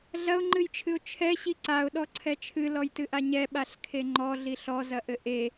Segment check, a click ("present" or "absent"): present